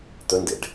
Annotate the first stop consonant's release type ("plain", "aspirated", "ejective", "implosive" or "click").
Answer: plain